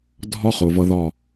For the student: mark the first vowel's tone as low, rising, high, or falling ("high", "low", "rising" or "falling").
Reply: high